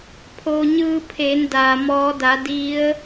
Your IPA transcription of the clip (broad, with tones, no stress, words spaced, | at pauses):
pʰo˩ɲɯː˧pʰeː˩˧n daː˩ mɔː˩˧da˩˧ di˧˥ə̯